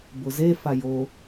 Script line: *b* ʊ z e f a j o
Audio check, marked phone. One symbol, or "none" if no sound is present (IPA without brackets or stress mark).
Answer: b